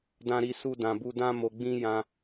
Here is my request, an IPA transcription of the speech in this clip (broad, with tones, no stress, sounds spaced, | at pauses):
d ã˨ ɾ i˨ s u˧ d ã˨ b u˧ d ã˧ m o˨ ɡ͡b ĩ˧ j ã˧